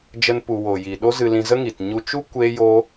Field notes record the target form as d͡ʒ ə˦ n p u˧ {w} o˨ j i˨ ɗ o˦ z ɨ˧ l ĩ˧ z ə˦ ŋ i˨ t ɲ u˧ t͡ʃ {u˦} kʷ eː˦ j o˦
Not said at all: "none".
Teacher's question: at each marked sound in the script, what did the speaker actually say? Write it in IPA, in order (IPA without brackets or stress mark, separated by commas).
w, u˦